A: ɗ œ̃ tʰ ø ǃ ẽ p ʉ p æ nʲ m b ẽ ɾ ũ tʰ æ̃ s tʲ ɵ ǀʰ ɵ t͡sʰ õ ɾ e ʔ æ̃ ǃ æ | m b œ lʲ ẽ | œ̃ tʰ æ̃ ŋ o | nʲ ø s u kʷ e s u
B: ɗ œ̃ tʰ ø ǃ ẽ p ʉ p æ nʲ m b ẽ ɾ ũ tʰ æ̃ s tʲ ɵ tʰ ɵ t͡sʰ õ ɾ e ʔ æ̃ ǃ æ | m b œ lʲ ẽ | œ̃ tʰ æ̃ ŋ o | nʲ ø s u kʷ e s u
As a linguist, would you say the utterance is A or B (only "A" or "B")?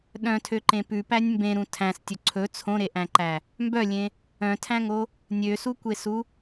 A